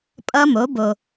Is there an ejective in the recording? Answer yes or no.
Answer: yes